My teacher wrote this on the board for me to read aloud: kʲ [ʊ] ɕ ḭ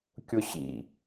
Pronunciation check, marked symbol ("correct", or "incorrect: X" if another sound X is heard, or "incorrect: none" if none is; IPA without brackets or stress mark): correct